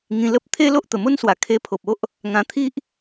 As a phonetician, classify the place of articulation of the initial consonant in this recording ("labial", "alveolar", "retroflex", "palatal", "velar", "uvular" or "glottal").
velar